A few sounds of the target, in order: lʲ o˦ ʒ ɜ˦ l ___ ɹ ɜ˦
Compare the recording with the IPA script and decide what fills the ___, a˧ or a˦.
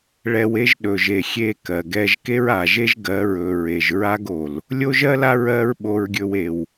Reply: a˦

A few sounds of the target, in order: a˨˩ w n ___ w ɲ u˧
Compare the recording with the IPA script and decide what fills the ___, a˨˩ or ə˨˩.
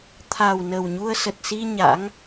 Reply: ə˨˩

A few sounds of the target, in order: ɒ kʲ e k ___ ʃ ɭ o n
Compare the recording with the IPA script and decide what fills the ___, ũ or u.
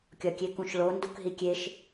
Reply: ũ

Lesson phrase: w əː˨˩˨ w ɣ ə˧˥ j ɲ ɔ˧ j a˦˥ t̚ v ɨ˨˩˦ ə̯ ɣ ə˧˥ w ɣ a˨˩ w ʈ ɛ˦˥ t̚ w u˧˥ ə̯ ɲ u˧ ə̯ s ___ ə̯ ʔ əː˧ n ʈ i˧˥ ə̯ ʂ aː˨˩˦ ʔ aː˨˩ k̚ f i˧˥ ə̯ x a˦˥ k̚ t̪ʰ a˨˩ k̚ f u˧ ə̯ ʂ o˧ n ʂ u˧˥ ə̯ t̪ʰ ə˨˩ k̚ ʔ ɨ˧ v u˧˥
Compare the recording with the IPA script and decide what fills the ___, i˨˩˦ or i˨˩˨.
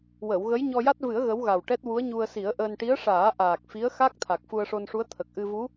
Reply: i˨˩˦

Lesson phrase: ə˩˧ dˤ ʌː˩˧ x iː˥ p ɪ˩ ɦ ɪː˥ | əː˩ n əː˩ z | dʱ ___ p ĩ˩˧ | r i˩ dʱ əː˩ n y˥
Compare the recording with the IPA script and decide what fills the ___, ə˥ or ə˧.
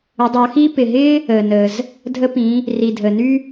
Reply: ə˧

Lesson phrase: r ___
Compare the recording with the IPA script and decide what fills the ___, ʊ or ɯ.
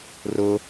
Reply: ʊ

